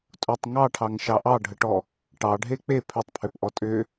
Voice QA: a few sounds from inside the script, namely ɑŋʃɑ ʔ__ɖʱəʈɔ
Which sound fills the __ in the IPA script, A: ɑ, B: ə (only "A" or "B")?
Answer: A